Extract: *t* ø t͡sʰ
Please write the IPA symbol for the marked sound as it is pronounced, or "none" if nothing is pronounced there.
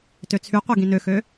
t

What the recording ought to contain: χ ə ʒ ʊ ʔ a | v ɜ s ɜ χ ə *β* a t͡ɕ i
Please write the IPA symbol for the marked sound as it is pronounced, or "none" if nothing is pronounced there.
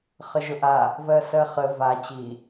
v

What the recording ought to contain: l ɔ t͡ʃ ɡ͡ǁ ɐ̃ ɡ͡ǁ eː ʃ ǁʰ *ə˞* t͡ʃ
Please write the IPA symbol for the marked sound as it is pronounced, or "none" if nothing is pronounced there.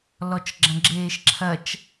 ɐ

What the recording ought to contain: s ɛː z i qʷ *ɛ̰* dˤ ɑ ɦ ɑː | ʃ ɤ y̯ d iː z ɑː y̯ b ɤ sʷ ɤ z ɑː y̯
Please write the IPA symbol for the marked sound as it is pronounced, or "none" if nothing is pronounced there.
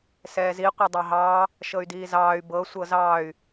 ɛ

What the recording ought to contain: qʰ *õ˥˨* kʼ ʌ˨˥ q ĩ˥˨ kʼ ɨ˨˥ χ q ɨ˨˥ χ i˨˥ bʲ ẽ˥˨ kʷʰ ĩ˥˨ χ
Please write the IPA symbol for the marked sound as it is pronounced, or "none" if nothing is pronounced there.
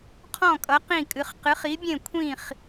ɔ̃˥˨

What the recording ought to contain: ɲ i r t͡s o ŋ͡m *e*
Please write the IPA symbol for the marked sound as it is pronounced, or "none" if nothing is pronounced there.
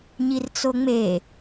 e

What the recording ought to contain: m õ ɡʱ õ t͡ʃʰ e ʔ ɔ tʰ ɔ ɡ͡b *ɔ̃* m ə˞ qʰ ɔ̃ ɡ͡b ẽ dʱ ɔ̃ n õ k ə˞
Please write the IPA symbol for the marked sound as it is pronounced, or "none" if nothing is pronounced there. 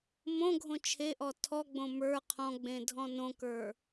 õ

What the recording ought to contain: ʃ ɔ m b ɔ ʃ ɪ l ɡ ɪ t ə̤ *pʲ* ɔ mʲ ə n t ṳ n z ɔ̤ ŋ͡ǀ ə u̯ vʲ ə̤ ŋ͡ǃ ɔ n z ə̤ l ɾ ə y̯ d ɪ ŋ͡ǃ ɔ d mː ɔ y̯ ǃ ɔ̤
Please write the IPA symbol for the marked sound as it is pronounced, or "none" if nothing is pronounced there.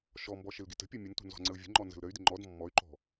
pʲ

